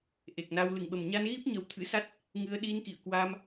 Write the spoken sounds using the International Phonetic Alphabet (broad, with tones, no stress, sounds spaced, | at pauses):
ʔ e˨˩ k̚ n a˧ w l ɨ˧˩ ŋ ɓ ə˨˩ m ɲ a˧ n ɣ i˦˥ p̚ ɲ ə˨˦ w t̪ʰ ɨ̰˧˥ s a˦˥ t̚ | ŋ ɨ˧ ə̯ ɗ i˧ n k ḭ˧˨ ə̯ k w a˧ m